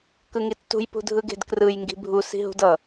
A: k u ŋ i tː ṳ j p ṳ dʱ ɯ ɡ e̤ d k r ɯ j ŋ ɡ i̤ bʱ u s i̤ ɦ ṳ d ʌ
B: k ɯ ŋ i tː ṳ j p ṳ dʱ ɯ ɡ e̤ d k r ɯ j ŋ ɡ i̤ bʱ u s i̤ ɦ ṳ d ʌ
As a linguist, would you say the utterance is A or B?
B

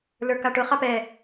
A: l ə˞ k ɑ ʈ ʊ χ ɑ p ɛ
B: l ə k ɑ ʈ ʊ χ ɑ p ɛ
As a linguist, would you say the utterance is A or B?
A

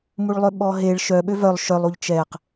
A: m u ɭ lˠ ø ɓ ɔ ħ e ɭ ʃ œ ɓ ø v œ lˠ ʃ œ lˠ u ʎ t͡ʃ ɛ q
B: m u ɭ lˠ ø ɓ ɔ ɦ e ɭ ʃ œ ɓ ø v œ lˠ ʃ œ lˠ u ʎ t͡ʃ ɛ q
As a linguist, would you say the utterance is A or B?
B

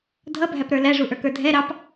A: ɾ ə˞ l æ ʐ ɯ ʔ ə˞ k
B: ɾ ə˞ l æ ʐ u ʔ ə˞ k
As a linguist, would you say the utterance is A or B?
B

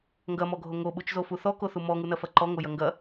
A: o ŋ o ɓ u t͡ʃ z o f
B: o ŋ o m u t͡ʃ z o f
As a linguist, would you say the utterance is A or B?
A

